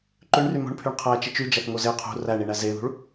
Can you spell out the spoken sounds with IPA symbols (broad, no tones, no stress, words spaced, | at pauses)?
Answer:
ǃøɳry mo̤ɳpʰyɳ qʰæt͡ʃit͡ʃ yd͡ʒæθŋo ze qʰṳ ræɳiɳæ zeðṳɭ